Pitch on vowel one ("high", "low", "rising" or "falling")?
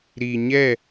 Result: low